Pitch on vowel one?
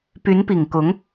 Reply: rising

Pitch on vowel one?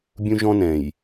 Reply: high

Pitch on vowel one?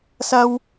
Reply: high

